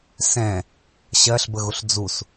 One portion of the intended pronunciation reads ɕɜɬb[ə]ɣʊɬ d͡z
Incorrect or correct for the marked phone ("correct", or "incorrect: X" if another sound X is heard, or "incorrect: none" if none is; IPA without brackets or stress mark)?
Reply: correct